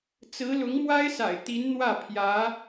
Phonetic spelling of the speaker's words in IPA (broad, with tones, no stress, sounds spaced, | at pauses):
t͡s ɹ̩˧˥ l ʊ˧˥ ŋ m w a˥ ɪ̯ s a̰˨˩ ɪ̯ t̪ i˧˥ n n̪ w ä˥˩ pʰ j ä˧˥